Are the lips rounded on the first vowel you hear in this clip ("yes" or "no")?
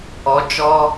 yes